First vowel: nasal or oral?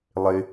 oral